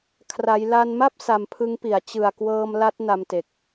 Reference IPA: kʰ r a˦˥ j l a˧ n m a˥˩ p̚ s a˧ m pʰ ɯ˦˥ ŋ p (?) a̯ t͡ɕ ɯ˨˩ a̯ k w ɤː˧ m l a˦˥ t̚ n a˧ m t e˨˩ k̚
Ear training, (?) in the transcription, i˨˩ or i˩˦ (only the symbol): i˩˦